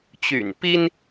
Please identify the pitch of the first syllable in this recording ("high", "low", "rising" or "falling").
low